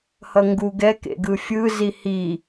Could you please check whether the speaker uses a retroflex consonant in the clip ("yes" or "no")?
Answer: no